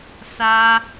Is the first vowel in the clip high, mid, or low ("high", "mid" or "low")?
low